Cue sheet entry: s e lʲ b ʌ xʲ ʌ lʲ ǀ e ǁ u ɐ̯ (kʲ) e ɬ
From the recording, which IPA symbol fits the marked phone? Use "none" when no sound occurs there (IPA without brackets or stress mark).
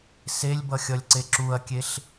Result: kʲ